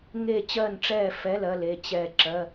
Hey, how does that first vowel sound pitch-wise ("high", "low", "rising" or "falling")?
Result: falling